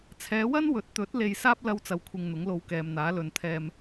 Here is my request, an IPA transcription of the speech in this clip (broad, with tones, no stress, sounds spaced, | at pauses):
t͡sʰ ɛː˨˧ w ɐ˥ n w ɵ˨˥ t̚ t̪ ɵ˨˥ t̚ l e˧ j s aː˥ p̚ l ɐ˥ w t͡s ɐ˧ w kʷʰ ɪ˧ ŋ n̪ ʊ˨˥ ŋ l o˧ w k ɛː˨ m n̪ aː˨˥ l ɵ˨ n t̪ʰ ɛː˧ m